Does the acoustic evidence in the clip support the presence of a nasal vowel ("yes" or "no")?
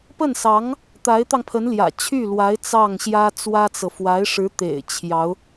no